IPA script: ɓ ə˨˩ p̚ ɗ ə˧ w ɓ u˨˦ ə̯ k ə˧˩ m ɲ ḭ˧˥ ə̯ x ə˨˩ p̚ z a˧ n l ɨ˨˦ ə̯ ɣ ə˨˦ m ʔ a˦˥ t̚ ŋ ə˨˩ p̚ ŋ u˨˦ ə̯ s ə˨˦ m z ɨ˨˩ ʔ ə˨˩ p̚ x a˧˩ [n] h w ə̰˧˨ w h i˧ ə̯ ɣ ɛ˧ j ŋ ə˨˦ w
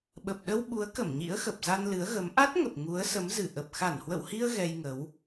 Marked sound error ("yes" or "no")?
no